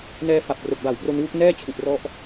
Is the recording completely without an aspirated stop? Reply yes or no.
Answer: no